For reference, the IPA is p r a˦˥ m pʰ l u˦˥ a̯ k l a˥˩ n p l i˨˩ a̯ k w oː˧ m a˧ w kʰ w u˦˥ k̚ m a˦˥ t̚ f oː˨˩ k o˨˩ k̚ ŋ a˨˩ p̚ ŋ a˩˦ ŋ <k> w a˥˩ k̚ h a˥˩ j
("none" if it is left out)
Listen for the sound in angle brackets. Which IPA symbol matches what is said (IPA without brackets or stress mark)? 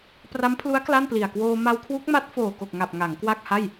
k